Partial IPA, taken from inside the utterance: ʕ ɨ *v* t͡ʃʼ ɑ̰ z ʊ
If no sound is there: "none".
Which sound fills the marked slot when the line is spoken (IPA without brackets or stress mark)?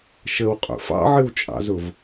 w